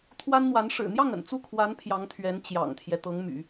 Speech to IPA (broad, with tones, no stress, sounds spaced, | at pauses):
t̪ʰ w a˥ n n̪ w a˧˥ n ʂ ɻ̩˨˩ n̪ j ɑ˥˩ ŋ ə̰˨˩ n t͡s u˥˩ kʰ w a˧˥ n pʰ j ɑ˧˥ ŋ t̪ʰ ɥ ɛ˧˥ n t͡ɕ j ɑ̰˨˩ ŋ t̪ʰ j ɛ˦ t̪ ɤ˧˥ ŋ m y̰˨˩˦